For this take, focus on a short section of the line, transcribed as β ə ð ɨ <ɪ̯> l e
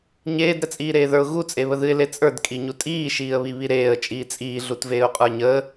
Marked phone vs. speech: correct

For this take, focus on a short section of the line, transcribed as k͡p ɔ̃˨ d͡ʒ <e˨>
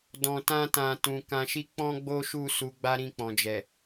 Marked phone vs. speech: incorrect: ɛ˨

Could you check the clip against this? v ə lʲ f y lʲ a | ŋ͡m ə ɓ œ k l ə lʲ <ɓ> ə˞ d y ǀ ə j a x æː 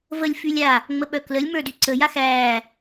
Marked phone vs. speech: incorrect: m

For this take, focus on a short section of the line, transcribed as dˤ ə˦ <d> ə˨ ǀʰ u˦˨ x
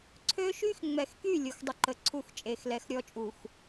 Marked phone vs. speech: incorrect: ǃ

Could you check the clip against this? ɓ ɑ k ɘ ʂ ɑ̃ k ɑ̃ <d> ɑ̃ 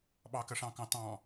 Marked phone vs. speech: incorrect: t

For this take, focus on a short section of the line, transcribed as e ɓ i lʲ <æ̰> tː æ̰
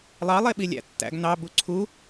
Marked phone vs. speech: correct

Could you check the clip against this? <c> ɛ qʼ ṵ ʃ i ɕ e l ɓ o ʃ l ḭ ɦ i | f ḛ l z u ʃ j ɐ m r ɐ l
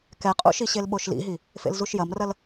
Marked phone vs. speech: incorrect: k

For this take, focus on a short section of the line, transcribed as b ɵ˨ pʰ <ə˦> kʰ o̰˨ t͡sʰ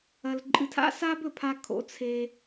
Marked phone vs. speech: incorrect: a˦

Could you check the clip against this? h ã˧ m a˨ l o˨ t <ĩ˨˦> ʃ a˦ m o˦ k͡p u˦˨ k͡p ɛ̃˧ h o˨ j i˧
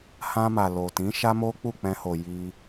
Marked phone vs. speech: correct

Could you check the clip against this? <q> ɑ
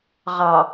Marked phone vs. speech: incorrect: ʁ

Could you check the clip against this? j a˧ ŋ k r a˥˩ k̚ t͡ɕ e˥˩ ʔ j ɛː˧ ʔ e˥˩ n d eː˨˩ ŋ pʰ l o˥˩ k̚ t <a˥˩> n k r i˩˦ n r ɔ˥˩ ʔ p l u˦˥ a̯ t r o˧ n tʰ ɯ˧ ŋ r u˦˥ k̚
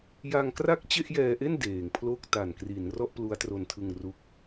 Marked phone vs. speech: incorrect: a˨˩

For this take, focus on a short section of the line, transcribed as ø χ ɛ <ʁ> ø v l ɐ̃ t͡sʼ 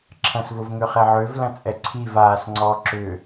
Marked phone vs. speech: incorrect: ʕ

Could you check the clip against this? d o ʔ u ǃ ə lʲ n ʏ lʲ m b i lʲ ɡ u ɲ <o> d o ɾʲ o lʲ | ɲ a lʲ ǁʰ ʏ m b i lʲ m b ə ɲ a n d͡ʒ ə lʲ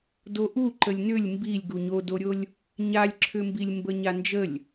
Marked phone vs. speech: correct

